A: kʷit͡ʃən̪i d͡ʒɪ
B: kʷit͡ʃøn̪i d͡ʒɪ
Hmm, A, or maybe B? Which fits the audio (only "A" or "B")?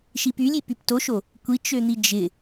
B